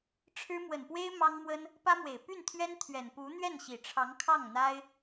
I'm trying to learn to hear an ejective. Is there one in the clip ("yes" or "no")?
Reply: no